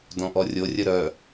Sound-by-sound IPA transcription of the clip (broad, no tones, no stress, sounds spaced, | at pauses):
d ɔ̃ ʔ ɔ rʲ o rʲ ə ɾ œ